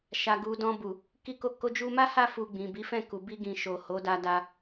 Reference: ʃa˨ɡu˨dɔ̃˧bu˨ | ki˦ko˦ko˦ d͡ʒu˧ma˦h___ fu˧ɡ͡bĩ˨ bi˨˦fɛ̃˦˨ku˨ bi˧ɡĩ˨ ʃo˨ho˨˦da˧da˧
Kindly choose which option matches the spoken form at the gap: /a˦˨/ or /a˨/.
a˦˨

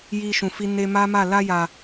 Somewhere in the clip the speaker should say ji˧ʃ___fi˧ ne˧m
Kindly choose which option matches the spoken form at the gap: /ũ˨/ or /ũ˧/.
ũ˨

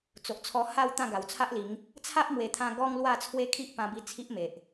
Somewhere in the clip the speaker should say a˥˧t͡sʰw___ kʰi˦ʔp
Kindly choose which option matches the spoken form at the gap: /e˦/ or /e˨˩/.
e˦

